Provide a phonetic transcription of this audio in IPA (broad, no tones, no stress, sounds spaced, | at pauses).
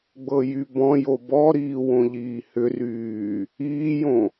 ɡ͡b ɤ j y b ɔ̃ j o b ɔ ɾ iː w õ ʎ iː h ʏ r yː | iː j õ